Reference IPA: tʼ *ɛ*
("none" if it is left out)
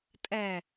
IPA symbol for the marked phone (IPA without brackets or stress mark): ɛ